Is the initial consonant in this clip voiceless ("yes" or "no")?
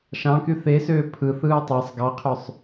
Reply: yes